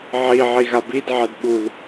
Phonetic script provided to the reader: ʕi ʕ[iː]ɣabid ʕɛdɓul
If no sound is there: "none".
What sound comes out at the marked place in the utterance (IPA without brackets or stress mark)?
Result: i